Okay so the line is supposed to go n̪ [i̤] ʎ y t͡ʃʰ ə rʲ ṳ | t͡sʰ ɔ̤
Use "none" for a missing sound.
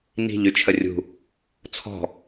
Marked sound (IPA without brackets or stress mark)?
i̤